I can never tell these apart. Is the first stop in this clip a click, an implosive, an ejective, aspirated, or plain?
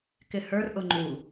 plain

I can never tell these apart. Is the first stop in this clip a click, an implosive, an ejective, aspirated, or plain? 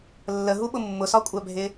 implosive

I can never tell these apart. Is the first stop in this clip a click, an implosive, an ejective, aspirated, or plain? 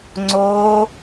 click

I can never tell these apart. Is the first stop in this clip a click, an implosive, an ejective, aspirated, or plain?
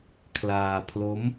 aspirated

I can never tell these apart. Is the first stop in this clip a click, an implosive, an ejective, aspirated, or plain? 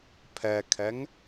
aspirated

